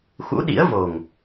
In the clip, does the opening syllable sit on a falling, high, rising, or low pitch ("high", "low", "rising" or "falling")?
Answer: rising